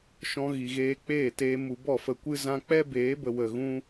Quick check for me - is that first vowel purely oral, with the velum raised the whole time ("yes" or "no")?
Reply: no